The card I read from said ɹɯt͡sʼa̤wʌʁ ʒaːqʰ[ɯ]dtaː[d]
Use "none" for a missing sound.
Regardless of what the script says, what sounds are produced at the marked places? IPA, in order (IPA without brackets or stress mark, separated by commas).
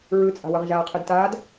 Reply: ɯ, d